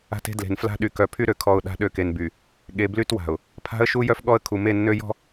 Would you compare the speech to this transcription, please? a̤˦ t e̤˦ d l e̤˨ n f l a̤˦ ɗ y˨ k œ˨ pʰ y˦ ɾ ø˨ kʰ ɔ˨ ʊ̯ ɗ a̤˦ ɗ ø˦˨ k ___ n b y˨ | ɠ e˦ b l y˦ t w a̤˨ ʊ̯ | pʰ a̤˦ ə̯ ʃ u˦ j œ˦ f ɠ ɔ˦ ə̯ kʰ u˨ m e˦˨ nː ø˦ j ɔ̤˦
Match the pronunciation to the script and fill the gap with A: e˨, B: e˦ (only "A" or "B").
A